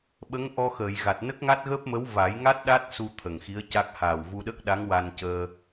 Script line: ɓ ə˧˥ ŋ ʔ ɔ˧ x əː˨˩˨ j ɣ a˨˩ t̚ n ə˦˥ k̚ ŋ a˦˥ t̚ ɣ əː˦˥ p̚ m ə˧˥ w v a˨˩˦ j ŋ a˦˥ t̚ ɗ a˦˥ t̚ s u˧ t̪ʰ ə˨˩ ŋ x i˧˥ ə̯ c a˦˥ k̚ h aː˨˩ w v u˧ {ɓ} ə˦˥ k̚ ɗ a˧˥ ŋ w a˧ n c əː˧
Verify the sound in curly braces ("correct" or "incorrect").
incorrect